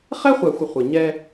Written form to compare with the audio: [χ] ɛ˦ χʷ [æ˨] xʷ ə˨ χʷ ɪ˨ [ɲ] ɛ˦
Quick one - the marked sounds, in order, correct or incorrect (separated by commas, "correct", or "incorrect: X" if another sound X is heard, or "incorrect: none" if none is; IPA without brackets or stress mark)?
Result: correct, correct, correct